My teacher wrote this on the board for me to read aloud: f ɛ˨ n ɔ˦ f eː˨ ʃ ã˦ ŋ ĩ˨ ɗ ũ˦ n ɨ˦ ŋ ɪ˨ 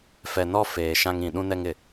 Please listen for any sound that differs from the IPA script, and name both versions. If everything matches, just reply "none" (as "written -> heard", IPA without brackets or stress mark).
ɨ˦ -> ɛ˦